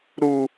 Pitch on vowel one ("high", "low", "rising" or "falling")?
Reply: high